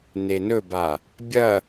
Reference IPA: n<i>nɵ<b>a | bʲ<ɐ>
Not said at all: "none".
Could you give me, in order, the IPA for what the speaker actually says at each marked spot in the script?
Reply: e, b, ɐ

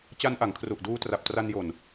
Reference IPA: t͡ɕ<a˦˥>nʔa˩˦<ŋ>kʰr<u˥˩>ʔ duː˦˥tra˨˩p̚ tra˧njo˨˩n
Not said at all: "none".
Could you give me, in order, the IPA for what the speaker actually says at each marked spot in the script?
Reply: a˦˥, ŋ, u˨˩

